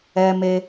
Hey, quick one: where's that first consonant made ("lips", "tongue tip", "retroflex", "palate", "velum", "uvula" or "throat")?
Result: lips